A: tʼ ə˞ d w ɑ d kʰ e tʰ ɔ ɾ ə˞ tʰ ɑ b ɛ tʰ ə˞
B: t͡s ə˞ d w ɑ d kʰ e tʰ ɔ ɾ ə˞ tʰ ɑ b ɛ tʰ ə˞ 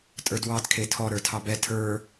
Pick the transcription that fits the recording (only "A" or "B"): A